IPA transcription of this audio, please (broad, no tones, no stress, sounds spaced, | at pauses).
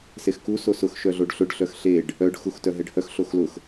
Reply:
s e x k u s o s ʊ x ʃ œ ɮ o ɖ ɬ ʊ ɖ ɬ œ x ɬ e ɖ | œ ɖ x u x t œ ɦ ɛ ɖ h œ x ɬ o x l ʊ x